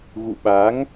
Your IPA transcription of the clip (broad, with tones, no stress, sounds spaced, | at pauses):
ɣ ṵ˧˨ ɓ a˨˦ ŋ